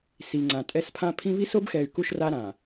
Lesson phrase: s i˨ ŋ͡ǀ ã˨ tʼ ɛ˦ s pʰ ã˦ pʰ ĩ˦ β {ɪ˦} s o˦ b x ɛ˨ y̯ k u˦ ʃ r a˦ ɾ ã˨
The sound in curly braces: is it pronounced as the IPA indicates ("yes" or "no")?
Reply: no